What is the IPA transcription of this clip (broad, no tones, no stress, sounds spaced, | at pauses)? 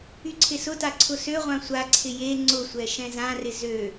y ǀʰ ɪ s ʊ t a ǀʰ ʊ s ø ʁʷ ã sʷ a ǀʰ ɪ j e ŋ͡ǀ ʊ sʷ ɛ ʃ ɛ̃ z ã r ɪ z ø